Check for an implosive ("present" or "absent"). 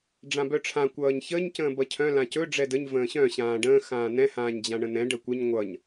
absent